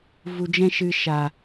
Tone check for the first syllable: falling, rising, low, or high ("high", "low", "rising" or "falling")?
low